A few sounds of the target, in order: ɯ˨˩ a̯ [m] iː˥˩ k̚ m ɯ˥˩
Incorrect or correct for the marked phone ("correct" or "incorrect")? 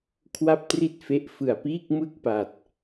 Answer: incorrect